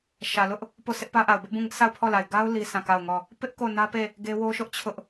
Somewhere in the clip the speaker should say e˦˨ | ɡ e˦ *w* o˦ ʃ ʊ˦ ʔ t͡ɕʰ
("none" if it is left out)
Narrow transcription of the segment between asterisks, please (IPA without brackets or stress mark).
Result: w